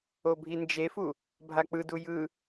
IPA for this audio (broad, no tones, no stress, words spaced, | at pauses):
obʱind͡ʒefu | bʱak͡pɯdu jɯ